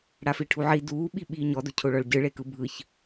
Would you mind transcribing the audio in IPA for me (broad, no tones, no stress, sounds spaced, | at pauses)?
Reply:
ɽ a f i ʈʰ u ʕ i d uː ɓ i ɓ iː ɲ ɔ d o cʰ o ɭ ɔ ɭ ɟ ɯ ɭ e k ɯ bʱ ɯ ç